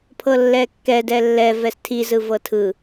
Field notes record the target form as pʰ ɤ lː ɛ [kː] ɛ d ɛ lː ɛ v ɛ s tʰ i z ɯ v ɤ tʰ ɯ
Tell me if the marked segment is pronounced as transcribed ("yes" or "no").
yes